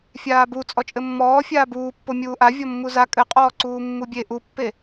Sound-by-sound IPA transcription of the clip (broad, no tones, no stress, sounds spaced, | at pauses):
fʲ aː b u t͡sʼ ɔ t͡ʃʼ ɘ mː ɔː fʲ aː b uː pː o mʲ uː ʔ a vʲ ɔ mː u z a kʼ ɘ qʼ ɔː ǀ uː mː u bʲ e ʔ u pː e